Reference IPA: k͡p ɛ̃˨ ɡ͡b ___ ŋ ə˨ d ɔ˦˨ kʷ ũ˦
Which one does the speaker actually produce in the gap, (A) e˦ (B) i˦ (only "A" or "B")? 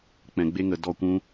A